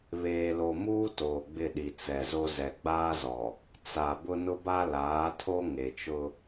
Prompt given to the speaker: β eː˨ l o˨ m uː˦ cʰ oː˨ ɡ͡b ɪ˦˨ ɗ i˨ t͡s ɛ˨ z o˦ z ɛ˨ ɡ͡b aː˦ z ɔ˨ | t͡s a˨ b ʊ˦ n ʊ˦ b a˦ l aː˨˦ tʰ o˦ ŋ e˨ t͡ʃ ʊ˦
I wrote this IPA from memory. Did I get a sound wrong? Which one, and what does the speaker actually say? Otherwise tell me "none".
cʰ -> t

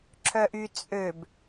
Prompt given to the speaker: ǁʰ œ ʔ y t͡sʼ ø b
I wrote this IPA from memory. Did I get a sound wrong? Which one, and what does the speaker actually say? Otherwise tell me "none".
none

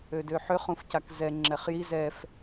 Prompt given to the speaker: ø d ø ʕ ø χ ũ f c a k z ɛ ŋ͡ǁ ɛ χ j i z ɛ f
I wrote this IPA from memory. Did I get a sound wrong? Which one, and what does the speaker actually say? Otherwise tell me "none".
ʕ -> ħ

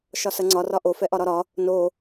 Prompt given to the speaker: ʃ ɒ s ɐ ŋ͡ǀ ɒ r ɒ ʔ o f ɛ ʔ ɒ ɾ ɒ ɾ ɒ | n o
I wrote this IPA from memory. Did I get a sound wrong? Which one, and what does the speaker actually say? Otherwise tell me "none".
none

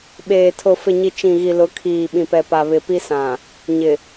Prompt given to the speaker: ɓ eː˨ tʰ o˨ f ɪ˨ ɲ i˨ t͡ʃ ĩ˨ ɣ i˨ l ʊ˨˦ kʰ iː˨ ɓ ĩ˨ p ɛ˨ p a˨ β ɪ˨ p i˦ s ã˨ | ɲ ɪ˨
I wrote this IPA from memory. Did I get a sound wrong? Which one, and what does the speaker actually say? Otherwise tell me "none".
none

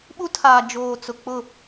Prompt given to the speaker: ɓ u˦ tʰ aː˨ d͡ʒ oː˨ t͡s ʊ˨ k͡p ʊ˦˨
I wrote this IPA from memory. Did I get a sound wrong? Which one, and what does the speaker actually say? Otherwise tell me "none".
none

